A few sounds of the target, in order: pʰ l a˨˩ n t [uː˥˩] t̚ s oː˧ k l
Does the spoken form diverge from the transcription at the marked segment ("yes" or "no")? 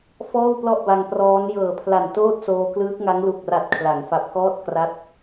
yes